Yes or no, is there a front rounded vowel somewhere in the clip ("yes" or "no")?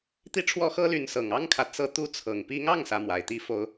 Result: yes